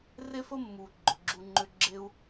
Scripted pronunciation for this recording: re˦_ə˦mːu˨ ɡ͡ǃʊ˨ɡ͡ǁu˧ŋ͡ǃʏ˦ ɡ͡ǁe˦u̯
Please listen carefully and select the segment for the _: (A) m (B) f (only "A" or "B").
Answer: B